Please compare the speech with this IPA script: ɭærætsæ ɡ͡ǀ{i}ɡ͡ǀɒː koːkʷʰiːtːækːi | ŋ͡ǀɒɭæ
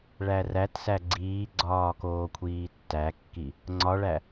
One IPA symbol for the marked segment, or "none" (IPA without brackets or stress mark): iː